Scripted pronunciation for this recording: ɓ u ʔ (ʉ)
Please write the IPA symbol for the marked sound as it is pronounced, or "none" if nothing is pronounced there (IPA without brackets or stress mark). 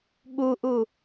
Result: u